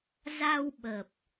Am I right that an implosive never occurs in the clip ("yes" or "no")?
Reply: no